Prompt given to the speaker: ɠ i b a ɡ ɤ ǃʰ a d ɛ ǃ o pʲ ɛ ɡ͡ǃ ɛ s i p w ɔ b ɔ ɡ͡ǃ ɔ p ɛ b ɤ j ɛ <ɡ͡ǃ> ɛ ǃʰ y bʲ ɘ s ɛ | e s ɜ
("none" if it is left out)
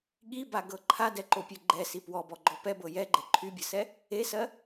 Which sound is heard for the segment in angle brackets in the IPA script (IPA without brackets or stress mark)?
ɡ͡ǃ